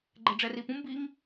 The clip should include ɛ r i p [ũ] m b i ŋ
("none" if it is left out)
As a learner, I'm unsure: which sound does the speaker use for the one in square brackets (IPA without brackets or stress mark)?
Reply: ũ